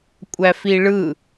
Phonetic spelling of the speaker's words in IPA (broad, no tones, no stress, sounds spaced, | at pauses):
kʷʼ æ f i ɭ ɯ